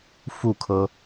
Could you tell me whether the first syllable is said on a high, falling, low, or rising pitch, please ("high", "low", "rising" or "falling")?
falling